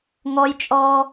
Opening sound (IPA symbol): ŋ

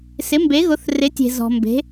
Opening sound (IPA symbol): s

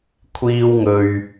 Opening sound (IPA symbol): kʷʰ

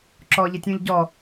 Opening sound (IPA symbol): ǁ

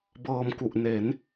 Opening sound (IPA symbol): b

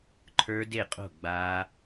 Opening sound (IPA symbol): ǃʰ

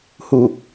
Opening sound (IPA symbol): h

